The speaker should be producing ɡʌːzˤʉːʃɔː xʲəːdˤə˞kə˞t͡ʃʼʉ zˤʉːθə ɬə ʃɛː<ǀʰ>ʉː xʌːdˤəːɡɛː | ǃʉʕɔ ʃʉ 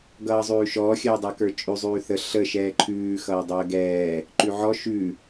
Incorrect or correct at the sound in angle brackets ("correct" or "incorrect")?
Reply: incorrect